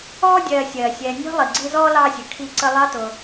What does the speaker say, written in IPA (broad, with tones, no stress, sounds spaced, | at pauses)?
ɔː˥ dʲ ɜː˨ sʲ ɜː˩ sʲ ɛː˨ nʲ ɔ̤˥ lˠ i˩ ɡ͡ǀ i˦ z ɔː˥ l ɑː˥ sʲ ə˨ kʰ i˦ ǀ ə˦ lˠ ɑ˥ t ʊ˨